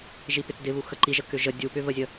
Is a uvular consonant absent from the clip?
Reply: yes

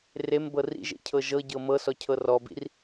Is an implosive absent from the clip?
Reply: yes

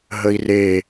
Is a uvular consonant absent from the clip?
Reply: yes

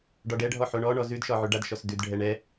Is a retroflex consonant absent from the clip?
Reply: no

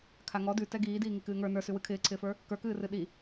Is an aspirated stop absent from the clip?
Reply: no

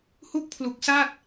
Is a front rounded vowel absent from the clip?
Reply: yes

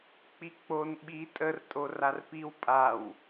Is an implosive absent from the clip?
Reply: no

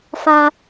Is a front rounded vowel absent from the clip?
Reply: yes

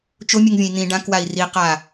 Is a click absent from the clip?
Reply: yes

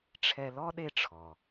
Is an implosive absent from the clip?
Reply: no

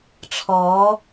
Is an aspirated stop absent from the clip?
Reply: no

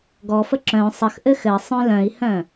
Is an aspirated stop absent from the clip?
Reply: yes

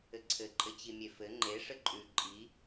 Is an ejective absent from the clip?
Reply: no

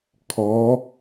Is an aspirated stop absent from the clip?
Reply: no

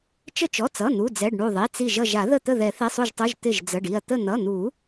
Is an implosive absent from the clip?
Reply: yes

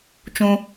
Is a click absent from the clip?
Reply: yes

